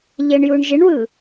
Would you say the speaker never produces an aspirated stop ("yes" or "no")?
yes